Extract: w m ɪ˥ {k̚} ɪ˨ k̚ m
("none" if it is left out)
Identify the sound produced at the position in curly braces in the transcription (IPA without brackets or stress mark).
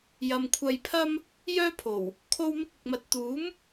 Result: k̚